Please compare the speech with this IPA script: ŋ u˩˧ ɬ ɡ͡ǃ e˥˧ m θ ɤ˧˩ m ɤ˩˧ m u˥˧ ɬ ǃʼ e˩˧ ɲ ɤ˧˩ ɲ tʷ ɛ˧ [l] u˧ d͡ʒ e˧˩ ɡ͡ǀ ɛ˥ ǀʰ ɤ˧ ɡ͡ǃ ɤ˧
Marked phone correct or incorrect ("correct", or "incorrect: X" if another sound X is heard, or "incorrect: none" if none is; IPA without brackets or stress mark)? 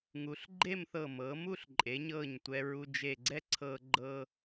incorrect: ɹ